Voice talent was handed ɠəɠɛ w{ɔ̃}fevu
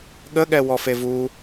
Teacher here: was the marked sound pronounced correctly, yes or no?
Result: no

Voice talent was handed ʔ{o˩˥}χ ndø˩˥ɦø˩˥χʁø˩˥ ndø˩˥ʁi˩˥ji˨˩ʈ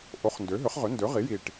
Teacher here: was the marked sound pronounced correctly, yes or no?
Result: yes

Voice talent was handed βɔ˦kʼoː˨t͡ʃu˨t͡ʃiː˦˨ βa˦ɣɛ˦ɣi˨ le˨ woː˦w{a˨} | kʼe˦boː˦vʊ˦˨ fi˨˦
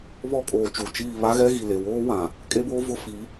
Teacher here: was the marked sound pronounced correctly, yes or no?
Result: no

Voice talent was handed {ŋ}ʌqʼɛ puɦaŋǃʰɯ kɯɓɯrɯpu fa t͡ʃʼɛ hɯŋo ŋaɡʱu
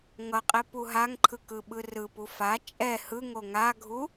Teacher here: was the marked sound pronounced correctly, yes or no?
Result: yes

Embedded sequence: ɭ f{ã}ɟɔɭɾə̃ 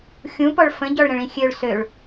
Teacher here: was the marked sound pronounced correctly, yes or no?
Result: no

